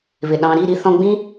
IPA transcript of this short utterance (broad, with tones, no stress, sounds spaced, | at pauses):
β ɪ˨ ɗ ɑ̃˧ ɾ i˦˨ ɾ i˧ θ ɔ̃˧ ɡ͡b ĩ˦